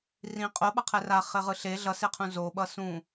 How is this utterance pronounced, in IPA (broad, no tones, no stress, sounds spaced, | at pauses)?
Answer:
r ĩ qʼ o ɓ ʌ qʰ ɛ r a χ e ʁ ɯ ɬ e ɮ ʌ s e qʰ ũ z o ɓ ʌ s ũ